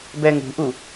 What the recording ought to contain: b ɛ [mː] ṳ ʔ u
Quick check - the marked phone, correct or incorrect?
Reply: incorrect: ŋ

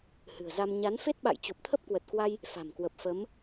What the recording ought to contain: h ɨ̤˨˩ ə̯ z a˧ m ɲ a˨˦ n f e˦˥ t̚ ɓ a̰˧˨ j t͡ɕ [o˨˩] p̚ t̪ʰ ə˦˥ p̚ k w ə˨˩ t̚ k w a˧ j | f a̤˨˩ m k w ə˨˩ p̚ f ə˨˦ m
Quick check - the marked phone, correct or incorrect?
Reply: correct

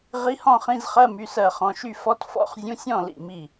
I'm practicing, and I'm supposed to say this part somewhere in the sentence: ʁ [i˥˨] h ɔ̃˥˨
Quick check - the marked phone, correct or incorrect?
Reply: incorrect: i˧˥˧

